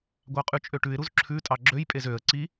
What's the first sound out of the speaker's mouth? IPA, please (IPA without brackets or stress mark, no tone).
ɡʷ